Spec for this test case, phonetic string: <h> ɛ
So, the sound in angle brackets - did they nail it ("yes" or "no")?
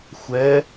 no